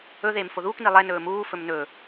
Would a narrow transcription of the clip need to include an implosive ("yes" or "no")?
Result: no